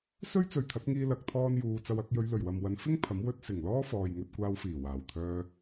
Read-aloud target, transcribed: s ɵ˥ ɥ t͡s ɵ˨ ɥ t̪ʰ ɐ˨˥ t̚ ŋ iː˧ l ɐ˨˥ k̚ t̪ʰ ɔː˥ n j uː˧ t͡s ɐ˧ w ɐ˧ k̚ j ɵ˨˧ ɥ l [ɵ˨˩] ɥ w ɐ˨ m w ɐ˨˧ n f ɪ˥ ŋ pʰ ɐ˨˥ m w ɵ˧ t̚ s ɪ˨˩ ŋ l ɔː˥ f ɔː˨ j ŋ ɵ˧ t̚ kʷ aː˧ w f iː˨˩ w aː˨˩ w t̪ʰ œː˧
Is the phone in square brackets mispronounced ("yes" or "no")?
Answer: no